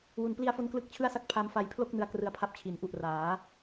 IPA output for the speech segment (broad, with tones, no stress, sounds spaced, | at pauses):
w u˩˦ n p l i˧ a̯ f o˧ n k l ɯ˥˩ k̚ t͡ɕʰ ɯ˥˩ a̯ s a˥˩ k̚ pʰ a˧ m f a˧ j pʰ l o˥˩ k̚ n ɯ˦˥ a̯ k r ɯ˧ a̯ pʰ a˦˥ p̚ t͡ɕʰ i˩˦ n ʔ u˨˩ ʔ r aː˩˦